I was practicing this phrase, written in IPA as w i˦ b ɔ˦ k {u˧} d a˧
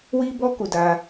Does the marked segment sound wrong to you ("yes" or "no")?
no